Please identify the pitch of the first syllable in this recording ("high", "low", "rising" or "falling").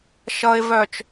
low